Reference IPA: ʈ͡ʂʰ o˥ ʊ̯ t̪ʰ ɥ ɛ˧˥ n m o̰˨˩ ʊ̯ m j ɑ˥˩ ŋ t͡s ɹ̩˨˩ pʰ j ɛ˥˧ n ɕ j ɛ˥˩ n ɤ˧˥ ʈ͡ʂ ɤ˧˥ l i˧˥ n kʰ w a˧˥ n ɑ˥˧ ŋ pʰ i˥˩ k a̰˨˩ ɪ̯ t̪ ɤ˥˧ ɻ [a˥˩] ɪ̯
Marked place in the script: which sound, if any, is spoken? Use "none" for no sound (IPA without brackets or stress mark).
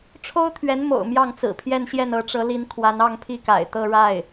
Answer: a˥˩